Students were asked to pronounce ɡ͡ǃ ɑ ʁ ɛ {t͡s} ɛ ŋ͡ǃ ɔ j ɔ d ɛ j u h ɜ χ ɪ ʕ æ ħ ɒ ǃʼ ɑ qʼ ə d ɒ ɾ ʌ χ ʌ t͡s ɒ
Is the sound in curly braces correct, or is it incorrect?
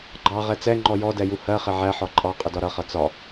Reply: correct